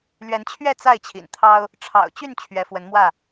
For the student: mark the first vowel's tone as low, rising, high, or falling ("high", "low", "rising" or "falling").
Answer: rising